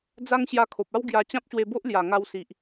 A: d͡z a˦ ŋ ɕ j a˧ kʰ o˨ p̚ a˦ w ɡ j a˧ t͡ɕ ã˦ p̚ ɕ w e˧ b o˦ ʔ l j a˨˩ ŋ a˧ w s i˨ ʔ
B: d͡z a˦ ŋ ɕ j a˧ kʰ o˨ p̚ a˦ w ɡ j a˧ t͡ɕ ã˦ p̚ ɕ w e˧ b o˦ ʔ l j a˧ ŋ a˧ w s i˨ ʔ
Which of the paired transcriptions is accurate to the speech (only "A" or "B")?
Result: A